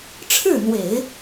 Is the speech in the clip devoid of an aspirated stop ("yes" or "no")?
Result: no